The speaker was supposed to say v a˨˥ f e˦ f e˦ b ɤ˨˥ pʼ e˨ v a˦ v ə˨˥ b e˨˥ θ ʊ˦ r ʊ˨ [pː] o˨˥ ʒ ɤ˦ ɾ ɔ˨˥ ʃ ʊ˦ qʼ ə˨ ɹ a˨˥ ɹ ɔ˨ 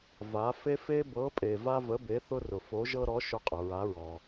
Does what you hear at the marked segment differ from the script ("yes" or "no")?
yes